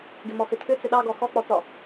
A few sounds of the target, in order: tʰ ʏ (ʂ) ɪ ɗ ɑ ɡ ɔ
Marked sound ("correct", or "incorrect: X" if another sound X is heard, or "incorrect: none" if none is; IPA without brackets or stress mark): incorrect: t͡s